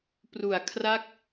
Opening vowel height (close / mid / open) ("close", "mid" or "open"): close